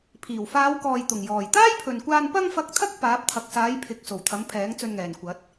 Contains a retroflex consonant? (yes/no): no